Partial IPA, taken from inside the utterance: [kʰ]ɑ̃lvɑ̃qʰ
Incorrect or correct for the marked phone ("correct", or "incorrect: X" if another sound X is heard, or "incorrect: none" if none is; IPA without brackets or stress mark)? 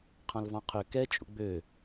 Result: incorrect: qʰ